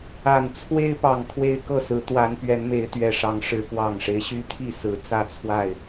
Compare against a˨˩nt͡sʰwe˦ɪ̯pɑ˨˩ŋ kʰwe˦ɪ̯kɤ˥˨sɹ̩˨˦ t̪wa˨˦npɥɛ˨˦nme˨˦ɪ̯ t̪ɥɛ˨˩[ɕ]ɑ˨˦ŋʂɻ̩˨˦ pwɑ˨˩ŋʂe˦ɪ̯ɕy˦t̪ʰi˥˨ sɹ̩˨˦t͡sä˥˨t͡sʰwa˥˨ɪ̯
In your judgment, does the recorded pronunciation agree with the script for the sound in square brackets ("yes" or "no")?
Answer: no